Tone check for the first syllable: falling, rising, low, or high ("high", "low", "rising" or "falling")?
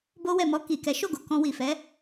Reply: high